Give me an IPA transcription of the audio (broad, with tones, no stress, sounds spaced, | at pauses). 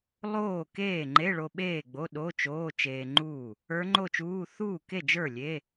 lˠ oː˥˩ k eː˥˩ ŋ͡ǃ e˧˥˧ ɭ o˧ ɓ eː˥˩ ɡ͡b o˧˥˧ ɗ o˧˥˧ t͡ʃ oː˧˥˧ t͡ʃ eː˧ ŋ͡ǃ uː˥˩ | ə˞˧˥ ŋ͡ǃ o˥˩ t͡ʃ uː˧˥˧ θ uː˥˩ k e˥˩ d͡ʒ ə˞˥˩ lʲ e˧˥˧